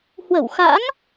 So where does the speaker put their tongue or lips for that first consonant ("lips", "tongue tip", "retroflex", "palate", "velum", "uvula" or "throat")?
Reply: throat